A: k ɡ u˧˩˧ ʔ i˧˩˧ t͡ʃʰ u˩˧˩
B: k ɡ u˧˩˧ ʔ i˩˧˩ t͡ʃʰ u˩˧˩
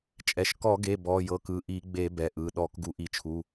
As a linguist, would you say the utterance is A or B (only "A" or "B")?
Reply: A